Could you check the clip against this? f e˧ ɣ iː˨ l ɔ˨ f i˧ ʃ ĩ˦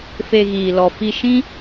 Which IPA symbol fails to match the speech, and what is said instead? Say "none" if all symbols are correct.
none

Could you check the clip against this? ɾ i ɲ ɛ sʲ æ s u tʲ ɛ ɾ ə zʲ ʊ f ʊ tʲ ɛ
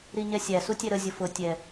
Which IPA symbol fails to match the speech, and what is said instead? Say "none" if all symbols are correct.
none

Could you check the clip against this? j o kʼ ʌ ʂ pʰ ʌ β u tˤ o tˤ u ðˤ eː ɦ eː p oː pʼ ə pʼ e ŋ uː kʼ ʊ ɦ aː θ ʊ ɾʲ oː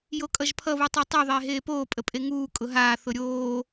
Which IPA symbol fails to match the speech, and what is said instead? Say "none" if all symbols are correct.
ʂ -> ʒ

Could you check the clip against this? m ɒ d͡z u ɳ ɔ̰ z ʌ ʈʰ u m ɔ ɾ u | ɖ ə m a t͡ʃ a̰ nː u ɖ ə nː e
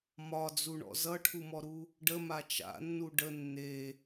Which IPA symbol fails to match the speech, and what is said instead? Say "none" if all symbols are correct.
none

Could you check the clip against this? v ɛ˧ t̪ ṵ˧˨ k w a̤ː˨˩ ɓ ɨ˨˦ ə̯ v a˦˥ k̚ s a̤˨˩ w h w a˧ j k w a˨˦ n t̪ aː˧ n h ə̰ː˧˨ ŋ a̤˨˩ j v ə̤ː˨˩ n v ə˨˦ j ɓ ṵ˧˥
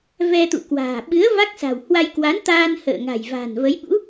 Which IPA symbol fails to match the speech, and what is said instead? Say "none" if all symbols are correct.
ə̤ː˨˩ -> a̤ː˨˩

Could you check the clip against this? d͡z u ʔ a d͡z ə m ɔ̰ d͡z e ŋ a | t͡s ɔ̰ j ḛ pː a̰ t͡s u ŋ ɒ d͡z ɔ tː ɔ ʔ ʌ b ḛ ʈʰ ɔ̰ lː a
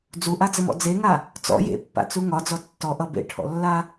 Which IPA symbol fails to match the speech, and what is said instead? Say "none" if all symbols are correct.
none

